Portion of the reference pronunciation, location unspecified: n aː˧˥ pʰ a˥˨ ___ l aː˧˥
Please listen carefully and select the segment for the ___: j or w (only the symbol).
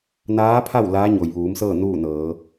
w